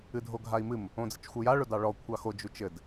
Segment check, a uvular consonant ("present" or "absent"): absent